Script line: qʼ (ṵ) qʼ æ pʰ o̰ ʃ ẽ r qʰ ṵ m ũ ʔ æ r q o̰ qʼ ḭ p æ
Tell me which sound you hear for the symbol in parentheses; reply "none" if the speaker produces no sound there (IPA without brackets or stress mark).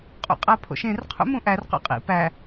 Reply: ṵ